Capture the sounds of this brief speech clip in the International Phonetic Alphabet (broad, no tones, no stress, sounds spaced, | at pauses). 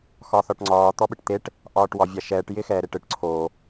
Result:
x ɒ θ ɒ ʈ ŋ͡ǀ ɒː t̪ ɔ ɓ ɯ ʈ t̪ e ʈ | ʔ ɒː ʈ w ɒ vʲ a ʃ ɛː ʈ j ɪ x ɛː ɾ e ʈ ɯ ʈ ǀʰ o